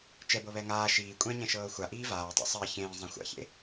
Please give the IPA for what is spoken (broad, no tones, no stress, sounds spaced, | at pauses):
t͡ʃ ɛ b ɤ β ɛ ŋ aː ʃ iː kʷʼ ɛ̃ ɲ ɛ̃ ʃ ɤː xʷ a ʔ iː v aː tˤ a̰ sˤ ɜ ç ẽː zˤ ã xʷ a̰ ç ḛ